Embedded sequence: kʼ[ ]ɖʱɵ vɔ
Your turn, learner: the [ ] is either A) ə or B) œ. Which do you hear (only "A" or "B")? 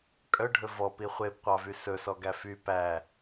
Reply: B